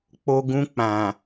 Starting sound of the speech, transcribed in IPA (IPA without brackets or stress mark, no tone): k͡p